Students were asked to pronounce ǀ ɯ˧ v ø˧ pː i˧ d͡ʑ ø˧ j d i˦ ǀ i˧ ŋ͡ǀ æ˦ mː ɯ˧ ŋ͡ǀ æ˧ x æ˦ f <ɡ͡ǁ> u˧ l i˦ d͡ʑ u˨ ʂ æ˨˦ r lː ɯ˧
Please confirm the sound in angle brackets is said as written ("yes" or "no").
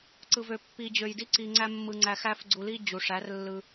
no